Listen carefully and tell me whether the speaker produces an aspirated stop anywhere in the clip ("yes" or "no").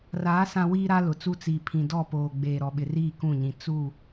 yes